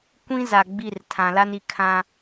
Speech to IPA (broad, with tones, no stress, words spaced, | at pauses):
kʷĩ˦za˨ɡ͡bi˦˨r tʰã˨la˦ni˨ kʰã˦